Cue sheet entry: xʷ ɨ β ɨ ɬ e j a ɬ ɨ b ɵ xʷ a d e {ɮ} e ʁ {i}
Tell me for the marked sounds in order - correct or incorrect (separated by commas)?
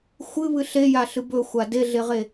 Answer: correct, incorrect